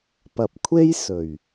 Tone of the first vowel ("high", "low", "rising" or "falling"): low